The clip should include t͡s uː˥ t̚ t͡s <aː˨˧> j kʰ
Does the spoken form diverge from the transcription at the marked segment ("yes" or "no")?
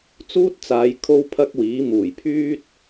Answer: no